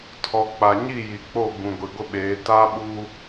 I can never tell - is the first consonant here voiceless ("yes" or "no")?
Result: yes